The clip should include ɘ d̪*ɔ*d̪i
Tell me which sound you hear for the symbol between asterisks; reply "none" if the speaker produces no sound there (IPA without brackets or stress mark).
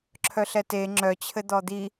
ɔ